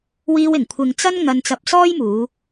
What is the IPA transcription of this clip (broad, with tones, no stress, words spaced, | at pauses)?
wiː˧wɪ˨˩ŋkʷʰɪ˨ŋ t͡sɐ˥nŋɐ˧n t͡sɐ˧p̚sɔː˥j muː˨˧